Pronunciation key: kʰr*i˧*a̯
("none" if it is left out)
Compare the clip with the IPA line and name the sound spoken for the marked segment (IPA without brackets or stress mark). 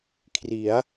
i˩˦